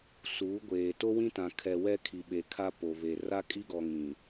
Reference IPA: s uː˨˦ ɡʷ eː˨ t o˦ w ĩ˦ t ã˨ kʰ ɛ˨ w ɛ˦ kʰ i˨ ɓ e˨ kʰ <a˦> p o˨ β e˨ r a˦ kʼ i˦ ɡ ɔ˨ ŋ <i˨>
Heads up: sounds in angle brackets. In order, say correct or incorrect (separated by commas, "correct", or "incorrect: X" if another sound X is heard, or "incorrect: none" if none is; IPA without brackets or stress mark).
correct, incorrect: ĩ˨